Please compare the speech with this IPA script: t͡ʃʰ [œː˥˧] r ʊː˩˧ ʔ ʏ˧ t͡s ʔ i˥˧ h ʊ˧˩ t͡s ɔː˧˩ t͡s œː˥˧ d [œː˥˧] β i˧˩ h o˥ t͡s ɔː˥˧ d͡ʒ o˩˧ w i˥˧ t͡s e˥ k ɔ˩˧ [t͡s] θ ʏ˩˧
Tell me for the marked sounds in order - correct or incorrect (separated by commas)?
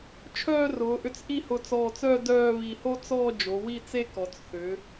correct, correct, correct